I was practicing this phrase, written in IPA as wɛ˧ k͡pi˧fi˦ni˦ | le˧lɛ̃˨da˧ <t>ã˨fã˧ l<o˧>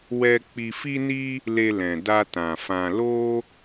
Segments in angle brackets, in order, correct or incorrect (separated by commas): correct, incorrect